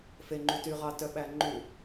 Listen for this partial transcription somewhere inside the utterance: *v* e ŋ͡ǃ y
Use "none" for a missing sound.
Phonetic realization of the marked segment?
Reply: f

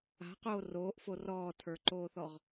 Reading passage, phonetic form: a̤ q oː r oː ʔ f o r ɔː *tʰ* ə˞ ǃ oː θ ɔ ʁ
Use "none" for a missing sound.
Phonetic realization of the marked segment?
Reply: tʰ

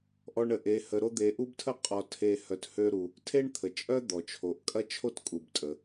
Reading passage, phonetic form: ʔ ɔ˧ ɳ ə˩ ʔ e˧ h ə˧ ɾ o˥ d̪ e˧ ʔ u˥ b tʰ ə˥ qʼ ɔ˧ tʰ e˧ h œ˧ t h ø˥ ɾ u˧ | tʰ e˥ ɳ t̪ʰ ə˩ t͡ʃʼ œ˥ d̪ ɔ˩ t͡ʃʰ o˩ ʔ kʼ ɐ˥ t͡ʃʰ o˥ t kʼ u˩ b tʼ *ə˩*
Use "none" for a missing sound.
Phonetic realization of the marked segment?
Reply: ə˩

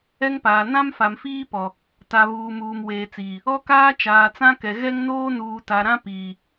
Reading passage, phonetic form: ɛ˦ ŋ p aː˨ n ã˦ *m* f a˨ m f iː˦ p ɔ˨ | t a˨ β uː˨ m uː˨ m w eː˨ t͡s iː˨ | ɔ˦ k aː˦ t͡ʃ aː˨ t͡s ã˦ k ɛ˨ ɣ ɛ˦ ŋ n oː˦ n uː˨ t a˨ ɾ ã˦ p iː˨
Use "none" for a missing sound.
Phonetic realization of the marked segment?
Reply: m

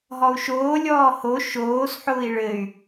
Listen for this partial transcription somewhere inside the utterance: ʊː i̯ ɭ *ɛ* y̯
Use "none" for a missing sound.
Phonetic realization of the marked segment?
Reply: ɘ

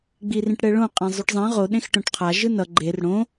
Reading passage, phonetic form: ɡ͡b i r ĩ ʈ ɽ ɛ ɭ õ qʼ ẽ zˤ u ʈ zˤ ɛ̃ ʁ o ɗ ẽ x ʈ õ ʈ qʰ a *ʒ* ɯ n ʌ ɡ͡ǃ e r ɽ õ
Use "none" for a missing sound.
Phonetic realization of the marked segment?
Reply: ʒ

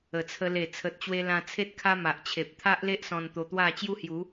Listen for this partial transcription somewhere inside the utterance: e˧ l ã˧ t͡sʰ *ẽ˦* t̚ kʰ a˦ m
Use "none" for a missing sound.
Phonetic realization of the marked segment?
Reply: e˦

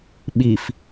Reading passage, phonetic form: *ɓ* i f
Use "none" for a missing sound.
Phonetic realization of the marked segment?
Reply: ɓ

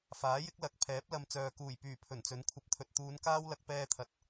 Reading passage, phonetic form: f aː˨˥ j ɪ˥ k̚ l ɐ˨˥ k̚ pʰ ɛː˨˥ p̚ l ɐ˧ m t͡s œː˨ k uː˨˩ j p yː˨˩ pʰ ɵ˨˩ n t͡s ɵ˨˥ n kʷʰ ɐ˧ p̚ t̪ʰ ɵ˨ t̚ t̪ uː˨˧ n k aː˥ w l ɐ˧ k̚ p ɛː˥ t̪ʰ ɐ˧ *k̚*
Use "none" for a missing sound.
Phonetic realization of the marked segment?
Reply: t̚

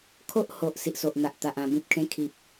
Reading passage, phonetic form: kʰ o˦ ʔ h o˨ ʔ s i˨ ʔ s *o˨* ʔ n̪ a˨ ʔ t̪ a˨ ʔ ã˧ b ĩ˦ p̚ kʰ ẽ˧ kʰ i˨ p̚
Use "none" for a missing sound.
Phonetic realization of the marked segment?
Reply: o˨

